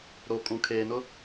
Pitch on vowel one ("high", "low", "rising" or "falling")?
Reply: low